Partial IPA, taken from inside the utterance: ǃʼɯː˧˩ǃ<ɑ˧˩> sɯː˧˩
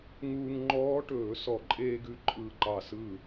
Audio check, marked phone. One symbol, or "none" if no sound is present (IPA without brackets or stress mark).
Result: ɑ˧˩